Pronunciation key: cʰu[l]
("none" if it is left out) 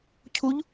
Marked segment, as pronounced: ʎ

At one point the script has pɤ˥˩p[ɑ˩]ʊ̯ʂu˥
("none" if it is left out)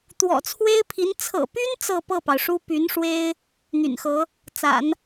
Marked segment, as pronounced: ɑ˩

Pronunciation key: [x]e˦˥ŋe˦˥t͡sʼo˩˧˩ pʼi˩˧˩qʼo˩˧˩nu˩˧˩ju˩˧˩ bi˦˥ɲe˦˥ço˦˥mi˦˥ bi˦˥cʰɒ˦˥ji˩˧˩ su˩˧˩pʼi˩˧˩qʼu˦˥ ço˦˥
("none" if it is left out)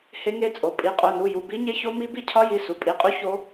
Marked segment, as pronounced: h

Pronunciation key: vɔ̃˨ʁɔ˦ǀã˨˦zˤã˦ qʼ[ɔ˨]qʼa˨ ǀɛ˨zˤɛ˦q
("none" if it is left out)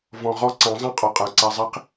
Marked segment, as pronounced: ɔ˨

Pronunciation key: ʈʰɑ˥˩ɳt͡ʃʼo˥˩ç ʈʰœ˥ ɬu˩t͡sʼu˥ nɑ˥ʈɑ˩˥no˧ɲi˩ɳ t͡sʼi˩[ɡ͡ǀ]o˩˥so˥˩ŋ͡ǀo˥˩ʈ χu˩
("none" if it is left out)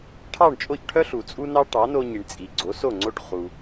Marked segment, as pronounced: ɡ͡ǀ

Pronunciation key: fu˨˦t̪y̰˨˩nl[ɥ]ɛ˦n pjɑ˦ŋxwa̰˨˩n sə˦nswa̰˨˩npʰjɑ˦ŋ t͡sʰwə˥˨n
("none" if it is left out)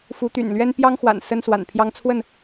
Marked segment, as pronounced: ɥ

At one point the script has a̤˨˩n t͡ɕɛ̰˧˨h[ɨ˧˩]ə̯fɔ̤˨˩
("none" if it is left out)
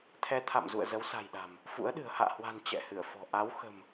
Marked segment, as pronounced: ɨ˧˩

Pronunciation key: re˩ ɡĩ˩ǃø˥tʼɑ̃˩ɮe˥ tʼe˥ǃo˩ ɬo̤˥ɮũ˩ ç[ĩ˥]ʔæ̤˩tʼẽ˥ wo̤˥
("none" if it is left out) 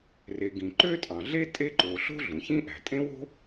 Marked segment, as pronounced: ĩ˥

